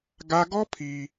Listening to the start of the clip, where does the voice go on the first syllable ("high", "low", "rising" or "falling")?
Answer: high